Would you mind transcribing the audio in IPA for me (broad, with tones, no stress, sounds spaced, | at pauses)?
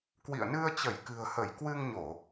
k w ḭ˧˨ ə̯ n ɨ˧ ə̯ t͡ɕ ə˧˩ j k ɨ̤˨˩ ə̯ h ə˧˩ j k w ɨ˧ ŋ ɲ o˧˩˨